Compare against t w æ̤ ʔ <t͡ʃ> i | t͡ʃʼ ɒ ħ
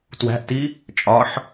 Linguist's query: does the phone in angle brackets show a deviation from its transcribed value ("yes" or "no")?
yes